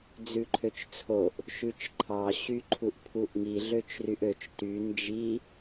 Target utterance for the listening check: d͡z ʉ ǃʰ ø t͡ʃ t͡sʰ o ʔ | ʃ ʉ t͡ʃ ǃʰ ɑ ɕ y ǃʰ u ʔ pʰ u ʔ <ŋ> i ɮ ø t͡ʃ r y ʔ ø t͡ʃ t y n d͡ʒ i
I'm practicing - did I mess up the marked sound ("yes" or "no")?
no